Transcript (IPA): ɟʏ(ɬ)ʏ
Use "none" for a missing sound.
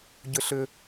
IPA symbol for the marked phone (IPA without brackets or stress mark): ɬ